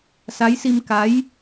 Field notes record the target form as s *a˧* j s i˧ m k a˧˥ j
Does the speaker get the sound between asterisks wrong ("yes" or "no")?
yes